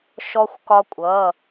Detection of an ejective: present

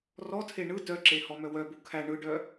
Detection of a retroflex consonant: present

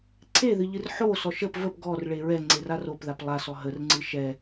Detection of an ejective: absent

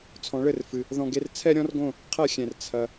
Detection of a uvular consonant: present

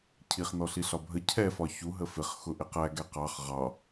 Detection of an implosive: absent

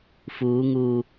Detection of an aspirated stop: absent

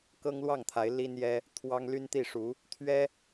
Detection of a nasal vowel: absent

